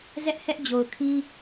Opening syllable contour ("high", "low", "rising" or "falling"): high